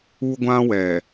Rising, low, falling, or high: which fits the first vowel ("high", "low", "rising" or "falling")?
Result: high